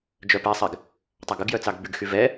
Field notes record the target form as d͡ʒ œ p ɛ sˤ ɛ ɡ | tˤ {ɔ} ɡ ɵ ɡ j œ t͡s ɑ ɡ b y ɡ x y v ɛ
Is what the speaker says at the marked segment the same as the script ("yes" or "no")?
no